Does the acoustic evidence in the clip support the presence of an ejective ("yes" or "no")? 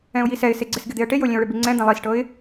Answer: no